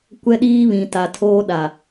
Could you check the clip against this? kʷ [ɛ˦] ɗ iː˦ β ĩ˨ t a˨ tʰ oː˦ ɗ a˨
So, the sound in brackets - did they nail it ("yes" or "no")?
yes